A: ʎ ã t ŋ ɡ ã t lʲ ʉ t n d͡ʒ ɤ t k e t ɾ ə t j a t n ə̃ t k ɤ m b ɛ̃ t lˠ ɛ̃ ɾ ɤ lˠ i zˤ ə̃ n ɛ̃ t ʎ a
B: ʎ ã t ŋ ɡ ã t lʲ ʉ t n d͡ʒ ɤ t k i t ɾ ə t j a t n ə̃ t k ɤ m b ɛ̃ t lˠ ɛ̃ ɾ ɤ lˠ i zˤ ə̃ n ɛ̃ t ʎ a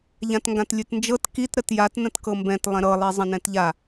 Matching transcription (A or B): B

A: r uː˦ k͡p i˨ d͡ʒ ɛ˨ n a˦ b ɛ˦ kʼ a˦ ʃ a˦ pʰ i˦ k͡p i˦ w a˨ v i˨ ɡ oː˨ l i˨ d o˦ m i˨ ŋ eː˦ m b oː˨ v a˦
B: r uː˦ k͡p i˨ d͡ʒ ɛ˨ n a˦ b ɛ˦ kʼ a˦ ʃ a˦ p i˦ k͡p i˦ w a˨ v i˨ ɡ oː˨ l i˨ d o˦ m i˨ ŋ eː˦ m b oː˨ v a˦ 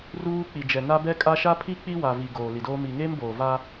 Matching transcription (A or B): A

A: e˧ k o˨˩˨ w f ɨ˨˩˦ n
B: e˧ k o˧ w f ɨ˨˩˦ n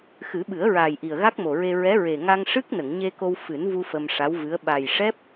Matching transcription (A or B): B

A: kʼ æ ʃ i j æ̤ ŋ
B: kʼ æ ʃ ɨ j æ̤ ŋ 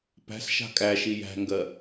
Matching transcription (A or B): A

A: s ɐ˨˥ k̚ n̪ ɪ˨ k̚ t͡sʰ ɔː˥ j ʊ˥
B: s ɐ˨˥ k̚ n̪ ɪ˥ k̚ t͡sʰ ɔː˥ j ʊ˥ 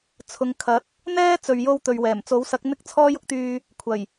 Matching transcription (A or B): B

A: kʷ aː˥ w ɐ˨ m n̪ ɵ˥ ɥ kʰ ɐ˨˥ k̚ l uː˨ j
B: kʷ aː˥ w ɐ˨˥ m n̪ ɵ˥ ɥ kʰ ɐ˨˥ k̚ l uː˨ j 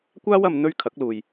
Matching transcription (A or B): A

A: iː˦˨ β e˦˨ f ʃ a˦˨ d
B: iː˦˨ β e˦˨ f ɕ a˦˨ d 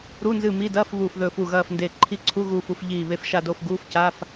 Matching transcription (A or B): A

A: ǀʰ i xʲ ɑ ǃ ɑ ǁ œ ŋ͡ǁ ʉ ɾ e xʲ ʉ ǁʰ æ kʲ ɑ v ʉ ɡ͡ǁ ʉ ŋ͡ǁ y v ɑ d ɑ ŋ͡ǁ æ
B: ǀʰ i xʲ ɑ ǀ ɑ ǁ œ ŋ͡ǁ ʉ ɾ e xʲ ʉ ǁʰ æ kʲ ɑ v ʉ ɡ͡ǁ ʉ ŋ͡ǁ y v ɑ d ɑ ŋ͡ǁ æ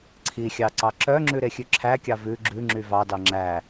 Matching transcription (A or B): B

